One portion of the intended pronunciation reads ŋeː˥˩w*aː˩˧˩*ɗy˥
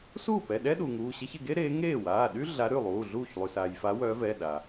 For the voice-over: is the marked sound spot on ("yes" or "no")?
yes